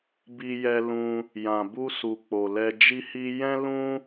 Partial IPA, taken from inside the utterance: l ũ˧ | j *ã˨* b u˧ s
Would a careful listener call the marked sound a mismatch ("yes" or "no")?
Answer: no